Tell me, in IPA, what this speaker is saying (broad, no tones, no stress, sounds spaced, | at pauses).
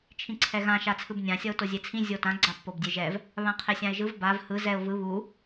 t͡ʃʰ ĩ ǀʰ ɛ ɣ ã ʃ a t͡sʰ ɯ b nʲ ã sʲ ʌ ʊ̯ t o zʲ e t͡sʰ ĩ zʲ o t ã ɡ͡ǀ a pː o b dʲ e ʒ ɛ v | β ã qʰ e sʲ ã ɪ̯ ʒ ɯ v b a v h ɯ z ɛ ʊ̯ v ɯ β u